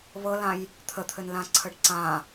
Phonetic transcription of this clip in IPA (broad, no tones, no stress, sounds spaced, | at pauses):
β ɤ l ã j | t̪ʰ ə t̪ʰ ɘ n l ã ǀʰ ə ɖ ǀ ã